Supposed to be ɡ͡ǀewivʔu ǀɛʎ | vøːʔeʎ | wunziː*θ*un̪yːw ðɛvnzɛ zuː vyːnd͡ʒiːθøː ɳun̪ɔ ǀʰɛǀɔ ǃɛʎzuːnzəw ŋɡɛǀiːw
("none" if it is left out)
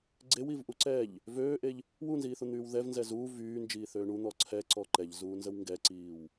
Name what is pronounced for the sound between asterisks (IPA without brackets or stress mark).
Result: θ